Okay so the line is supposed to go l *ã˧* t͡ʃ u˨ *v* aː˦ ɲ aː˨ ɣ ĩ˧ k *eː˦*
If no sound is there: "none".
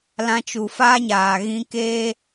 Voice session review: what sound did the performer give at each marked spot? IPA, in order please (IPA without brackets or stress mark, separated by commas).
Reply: ã˧, f, eː˦